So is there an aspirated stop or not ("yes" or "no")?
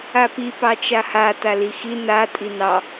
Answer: no